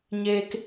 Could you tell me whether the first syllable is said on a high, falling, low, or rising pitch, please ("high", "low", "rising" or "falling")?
high